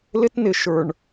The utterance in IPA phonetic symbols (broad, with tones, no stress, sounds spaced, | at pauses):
l ɪ˦ t n ɪ˨ ʃ ə˞˨ ɳ